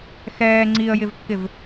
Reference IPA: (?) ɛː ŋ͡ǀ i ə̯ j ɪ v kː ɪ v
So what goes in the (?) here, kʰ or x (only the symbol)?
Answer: x